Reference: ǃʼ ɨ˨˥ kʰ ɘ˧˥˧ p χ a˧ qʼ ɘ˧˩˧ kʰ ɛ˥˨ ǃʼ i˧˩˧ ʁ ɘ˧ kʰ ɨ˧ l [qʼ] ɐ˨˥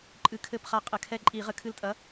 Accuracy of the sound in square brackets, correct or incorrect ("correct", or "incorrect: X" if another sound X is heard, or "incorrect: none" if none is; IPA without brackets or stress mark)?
incorrect: tʼ